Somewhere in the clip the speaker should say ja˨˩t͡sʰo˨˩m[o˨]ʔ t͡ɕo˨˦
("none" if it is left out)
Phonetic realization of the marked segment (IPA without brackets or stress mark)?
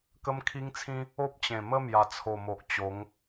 o˨